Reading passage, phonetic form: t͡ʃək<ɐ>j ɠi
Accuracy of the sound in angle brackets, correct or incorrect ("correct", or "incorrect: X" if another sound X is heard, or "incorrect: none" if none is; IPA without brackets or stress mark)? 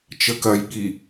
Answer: correct